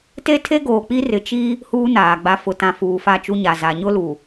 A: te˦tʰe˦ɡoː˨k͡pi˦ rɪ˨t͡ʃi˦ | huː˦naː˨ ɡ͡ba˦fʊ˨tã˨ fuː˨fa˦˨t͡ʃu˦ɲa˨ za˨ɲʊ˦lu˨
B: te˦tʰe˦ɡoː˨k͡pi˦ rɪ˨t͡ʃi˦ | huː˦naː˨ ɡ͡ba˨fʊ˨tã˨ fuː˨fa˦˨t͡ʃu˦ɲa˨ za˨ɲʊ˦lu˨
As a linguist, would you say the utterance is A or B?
B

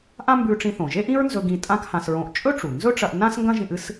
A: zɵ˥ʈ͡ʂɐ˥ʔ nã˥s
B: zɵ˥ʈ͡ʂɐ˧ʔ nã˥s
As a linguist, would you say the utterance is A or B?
B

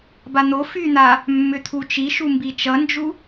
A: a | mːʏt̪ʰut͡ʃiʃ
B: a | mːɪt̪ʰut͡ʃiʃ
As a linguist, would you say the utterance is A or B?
A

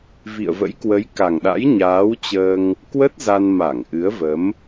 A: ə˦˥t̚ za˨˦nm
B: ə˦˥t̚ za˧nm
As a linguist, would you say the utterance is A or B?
B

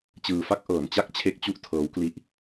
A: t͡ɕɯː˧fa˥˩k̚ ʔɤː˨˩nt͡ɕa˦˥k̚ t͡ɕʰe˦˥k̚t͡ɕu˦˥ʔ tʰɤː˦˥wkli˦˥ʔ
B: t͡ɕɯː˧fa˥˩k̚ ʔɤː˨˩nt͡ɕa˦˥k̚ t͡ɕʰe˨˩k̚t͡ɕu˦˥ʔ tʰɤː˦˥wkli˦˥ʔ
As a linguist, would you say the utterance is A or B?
A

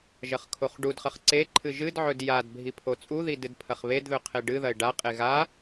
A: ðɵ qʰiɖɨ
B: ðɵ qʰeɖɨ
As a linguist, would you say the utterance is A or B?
B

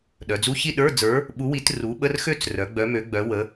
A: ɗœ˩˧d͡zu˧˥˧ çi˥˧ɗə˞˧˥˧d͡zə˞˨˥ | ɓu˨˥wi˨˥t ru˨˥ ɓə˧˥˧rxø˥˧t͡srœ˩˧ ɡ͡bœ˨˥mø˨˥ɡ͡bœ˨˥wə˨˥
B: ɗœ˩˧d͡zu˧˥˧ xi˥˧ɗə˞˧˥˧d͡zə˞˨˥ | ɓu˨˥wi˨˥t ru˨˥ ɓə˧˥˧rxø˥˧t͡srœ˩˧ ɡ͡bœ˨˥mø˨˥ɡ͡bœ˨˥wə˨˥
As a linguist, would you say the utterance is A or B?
A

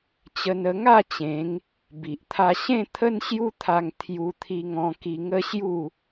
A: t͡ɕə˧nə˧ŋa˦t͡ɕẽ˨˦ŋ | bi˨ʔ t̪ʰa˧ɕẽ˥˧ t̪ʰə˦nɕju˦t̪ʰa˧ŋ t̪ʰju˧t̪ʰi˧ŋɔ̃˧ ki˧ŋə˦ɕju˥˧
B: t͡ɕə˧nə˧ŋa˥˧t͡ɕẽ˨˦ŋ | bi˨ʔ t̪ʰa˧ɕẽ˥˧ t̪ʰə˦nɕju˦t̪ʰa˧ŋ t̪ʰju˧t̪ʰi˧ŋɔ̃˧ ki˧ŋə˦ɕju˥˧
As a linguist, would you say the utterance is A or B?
B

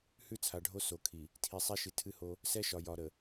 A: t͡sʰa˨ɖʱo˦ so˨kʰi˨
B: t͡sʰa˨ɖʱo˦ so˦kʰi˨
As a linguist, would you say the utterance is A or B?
A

